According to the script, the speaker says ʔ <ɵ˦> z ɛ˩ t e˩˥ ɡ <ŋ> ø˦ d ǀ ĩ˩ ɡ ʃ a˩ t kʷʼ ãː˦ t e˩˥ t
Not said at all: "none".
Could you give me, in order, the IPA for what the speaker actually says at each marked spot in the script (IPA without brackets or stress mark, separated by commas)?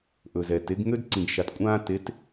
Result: ɵ˩, ŋ